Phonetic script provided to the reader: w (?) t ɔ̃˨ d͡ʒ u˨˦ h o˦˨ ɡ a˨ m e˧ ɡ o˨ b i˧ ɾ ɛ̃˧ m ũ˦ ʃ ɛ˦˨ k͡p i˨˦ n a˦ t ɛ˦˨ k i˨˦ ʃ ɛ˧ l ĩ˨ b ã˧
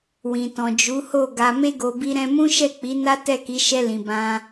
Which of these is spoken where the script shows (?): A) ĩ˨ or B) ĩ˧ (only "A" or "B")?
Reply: A